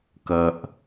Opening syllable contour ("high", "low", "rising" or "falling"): low